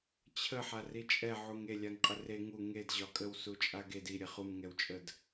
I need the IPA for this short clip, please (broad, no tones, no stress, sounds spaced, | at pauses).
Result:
t͡ɕʰ ə ħ a r i t͡ʃʼ ɛ ʕ u ŋ e lʲ a ŋ qʼ ə r e ŋ u ŋ e d ʑ ɒ kʼ ə w s u t͡ʃʼ a ɡ e d i ɾʲ ɛ χ u m ŋ ɛ w t͡ʃʼ ə d